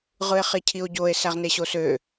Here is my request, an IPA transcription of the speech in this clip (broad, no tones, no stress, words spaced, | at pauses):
ʁɯe̯χecʰio̯ɟoe̯ sæʁneɕosø